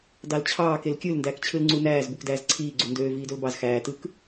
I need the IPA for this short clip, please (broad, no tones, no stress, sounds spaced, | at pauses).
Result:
d ɑ l t͡ɕʰ ɑː k e l kʲ ɯ l n d æː k t͡ɕʰ ɯ l ŋ͡ǀ u n æː z b u k d æː z ǀʰ iː ɡ͡ǀ u n d øː v iː d o l b ɑ z x æː t ɯ k